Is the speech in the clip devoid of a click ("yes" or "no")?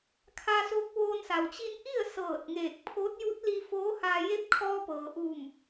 yes